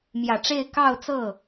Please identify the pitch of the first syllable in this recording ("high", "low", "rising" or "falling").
low